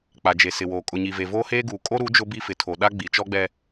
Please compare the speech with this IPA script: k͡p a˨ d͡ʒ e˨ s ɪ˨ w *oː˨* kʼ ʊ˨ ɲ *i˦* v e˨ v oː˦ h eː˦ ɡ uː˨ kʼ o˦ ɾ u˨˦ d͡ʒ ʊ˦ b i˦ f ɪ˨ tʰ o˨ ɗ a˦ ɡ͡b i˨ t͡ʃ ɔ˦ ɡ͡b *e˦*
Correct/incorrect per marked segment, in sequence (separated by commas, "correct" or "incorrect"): correct, incorrect, incorrect